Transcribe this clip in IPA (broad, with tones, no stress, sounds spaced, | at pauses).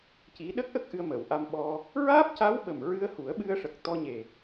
c i˧˥ ɗ ə˦˥ k̚ ʔ ə˦˥ k̚ ʔ ɨ˧ ə̯ m əː˨˩˨ w ʔ a˧ m ɓ ɔ˧ | ɹ aː˦˥ p̚ c a˧˥ w ɓ ə˨˩ m ɹ ɨ˧ ə̯ h u˨˩˦ ə̯ ɓ ɨ˧ ə̯ ʂ ə˨˩ k̚ t̪ ɔ˧ ɲ e˨˩